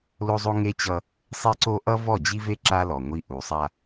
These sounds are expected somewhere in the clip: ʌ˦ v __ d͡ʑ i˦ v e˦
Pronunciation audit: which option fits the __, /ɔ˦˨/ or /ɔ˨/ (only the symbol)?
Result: ɔ˦˨